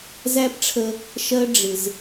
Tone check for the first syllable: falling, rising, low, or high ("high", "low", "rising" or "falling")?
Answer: high